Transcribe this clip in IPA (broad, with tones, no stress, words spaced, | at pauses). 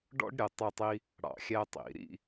ɖɔ̰˥ɖɾʲə˩˧˩ tˤɛ˥˧tˤi˥ | ɽɑ̰˧˩˧xʲæ˥tˤḭ˧˩˧ ɾḭ˥˧